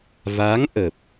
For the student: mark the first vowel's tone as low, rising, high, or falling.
rising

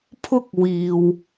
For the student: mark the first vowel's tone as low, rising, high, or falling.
high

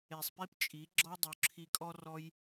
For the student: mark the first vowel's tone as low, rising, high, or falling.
low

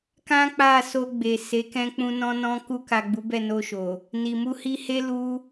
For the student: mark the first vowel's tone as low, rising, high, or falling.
high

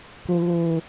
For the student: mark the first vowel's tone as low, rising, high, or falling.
low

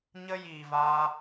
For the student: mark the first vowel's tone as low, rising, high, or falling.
high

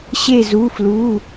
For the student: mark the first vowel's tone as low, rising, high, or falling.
falling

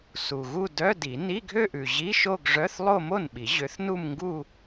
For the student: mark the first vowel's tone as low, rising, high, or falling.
low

